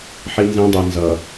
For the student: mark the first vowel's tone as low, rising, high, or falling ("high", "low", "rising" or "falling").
high